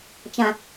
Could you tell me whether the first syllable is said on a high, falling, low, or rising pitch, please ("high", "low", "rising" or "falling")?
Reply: low